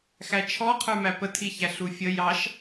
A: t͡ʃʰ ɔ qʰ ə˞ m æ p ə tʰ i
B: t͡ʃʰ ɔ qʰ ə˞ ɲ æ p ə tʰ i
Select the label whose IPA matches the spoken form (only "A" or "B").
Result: A